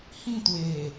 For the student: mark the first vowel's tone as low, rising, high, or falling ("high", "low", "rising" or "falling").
falling